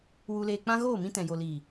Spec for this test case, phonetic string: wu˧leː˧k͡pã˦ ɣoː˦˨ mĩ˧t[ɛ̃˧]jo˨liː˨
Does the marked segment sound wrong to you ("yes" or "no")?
yes